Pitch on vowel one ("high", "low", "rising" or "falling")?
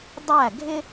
falling